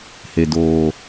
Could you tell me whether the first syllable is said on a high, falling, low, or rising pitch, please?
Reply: low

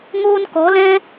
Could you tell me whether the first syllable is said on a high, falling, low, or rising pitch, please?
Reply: high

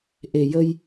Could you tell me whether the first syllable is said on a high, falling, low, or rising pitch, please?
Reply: low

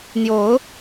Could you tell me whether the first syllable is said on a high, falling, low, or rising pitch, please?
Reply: rising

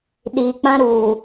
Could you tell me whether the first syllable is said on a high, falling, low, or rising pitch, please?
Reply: low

